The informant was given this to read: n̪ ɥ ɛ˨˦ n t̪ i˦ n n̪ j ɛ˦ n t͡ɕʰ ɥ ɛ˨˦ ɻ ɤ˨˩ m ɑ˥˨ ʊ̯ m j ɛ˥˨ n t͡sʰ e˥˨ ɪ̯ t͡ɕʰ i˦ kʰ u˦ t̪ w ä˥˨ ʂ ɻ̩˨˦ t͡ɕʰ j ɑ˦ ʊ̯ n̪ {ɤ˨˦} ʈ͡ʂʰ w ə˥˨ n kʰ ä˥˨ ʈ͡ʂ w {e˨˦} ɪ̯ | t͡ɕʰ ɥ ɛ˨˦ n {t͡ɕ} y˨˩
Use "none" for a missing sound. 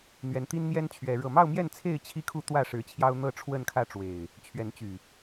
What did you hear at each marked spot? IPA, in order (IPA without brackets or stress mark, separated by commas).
ɤ˥˨, e˨˩, t͡ɕ